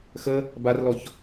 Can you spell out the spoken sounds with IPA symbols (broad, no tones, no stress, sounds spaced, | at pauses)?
x ə | b a r l ɔ ç